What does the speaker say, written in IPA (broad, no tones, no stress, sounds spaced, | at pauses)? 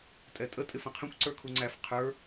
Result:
tʼ ɛ tʼ ə tʼ ɪ f ə̃ qʰ ə̃ kʷ ǀ ə˞ kʰ u ŋ͡ǀ æ f qʰ ə˞